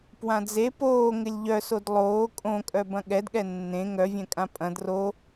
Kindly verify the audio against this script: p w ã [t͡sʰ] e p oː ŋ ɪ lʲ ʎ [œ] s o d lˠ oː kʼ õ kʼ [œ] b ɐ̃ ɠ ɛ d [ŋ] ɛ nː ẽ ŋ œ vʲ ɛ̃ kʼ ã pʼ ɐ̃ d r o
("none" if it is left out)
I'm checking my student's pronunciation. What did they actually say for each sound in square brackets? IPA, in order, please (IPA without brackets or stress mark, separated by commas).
d͡z, œ, œ, ɠ